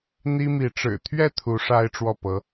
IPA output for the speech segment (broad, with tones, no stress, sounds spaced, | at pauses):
n̪ i˥ m i˧˥ ʈ͡ʂ ɻ̩˨˩ t̪ʰ ɥ ɛ˥˩ t̪ʰ u˧˥ ʂ a˥ ɪ̯ ʈ͡ʂ w ɔ˥˩ p ɤ˧˥